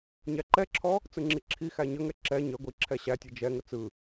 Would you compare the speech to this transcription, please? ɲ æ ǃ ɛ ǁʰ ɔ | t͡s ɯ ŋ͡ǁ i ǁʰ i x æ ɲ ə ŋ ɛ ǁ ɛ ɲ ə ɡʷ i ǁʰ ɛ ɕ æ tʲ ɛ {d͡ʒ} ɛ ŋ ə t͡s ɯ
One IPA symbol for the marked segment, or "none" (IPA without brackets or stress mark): d͡ʒ